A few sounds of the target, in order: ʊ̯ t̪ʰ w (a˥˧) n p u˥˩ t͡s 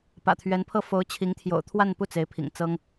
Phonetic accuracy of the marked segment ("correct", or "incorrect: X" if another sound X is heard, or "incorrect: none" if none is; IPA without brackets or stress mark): correct